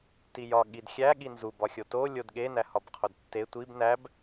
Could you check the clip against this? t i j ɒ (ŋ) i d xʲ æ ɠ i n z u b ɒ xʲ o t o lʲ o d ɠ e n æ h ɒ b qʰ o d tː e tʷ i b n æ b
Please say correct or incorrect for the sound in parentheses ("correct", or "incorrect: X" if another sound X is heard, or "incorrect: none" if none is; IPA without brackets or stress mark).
incorrect: ɠ